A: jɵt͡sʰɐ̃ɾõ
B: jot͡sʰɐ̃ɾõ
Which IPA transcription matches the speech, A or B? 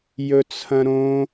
A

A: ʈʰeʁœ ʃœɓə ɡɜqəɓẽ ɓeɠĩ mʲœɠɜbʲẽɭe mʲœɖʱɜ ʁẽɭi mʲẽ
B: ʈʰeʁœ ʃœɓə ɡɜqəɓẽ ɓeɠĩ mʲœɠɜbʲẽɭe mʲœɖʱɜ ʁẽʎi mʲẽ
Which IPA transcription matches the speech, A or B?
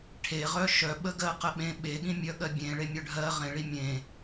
A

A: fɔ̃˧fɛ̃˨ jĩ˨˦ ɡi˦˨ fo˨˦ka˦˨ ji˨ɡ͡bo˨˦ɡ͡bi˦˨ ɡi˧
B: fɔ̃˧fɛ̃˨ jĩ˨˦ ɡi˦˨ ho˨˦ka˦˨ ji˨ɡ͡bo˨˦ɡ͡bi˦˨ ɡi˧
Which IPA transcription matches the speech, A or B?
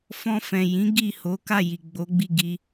B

